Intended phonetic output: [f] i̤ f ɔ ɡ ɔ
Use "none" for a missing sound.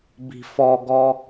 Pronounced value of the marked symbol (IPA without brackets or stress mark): b